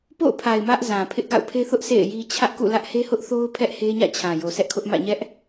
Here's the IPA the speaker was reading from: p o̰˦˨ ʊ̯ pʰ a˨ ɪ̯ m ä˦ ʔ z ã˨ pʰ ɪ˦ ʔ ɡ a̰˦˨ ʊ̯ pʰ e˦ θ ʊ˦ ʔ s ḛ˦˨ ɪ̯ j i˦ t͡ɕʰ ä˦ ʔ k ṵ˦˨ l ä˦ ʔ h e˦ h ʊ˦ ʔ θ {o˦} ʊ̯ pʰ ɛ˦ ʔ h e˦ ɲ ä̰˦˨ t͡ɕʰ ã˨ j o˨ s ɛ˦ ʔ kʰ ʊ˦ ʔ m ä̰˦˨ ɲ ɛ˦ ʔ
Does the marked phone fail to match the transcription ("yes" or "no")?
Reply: no